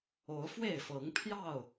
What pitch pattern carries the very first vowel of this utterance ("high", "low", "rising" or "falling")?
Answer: rising